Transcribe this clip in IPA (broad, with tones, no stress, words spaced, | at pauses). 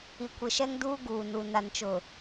i˨kʷɪ˨ ʃɛ˦ŋduː˦ ɡuː˨nu˨ na˨nt͡ʃʊ˨